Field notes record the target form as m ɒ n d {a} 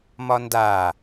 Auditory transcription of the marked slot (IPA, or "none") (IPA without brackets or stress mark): a